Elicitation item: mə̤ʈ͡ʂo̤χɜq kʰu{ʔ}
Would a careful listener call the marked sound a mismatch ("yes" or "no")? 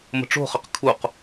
yes